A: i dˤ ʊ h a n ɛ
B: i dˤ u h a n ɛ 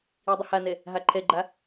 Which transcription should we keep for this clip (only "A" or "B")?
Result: A